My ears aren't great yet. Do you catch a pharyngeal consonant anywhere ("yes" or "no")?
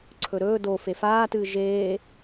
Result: no